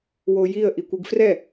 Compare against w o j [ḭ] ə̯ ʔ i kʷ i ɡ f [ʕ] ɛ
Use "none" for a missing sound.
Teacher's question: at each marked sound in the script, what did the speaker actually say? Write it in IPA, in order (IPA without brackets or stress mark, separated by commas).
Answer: i, r